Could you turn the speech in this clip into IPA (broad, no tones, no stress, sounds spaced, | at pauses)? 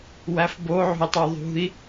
w æ f b o ʕ ṳ i̯ tˤ o ðˤ ṳ i̯